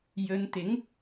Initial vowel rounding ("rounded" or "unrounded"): rounded